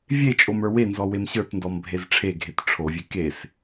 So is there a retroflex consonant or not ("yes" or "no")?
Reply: yes